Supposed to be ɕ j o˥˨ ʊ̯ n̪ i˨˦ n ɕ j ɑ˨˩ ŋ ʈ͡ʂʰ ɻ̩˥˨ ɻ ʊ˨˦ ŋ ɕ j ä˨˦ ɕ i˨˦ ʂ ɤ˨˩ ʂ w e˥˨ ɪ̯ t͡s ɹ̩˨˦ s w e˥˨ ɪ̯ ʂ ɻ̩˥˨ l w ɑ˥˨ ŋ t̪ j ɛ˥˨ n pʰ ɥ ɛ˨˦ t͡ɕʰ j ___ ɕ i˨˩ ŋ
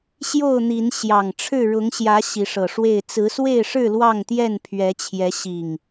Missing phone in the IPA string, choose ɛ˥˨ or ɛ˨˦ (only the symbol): ɛ˨˦